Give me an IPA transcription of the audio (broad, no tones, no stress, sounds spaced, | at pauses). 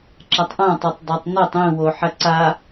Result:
ǁ a tˤ ʔ ã tˤ e tˤ dˤ ɐ tˤ n o tˤ ĩ w o ħ ɐ ǀ a